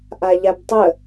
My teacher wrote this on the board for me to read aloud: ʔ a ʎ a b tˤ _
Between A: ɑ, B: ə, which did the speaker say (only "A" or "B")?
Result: B